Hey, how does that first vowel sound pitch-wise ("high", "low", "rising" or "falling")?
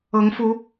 rising